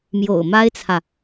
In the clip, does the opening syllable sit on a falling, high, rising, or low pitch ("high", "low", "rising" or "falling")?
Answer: low